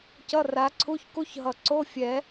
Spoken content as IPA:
cʌ˧˥˧ra˨˦ǀʰu˧˥˧ç ku˦˥çɦʌ˨˩ǀo˧˥˧ fʲɛ˨˩˦

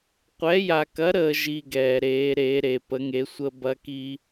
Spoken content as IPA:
qʷɛ˧˥ja˧kɐ˧˥ɾəː˧ ʒi˥ɡɛː˧ɾeː˧˥ ɾeː˧˥ɾe˧ pə˧˥ŋe˧˥sʷəː˥ bɐ˥ki˥

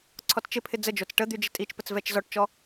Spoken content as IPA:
ǀʰɔtt͡ʃɪpʰɪ d͡zəd͡ʒot͡s ʈəd̪y d͡ʒɪtʼit͡ʃpət͡s vɛt͡ʃzɔʈt͡ʃɔ

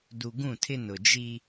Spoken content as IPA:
du˨ɡũ˦˨tʰɪ˦ nʊ˨d͡ʒi˦

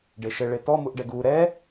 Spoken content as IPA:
ɖeʃɘ ɭetɔ muʔɖɛɡuː ɾɛ

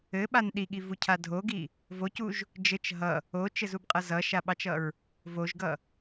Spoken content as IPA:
ɘɓan ɗiɠivucʰa dʱoɡi | vocuʒ | d͡ʒɘt͡ʃ ɦʌ | ot͡ʃɘzubqʼʌ zʌʃaɓɑt͡ʃʌɹ | voʒɡʌ

